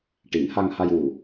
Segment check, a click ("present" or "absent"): absent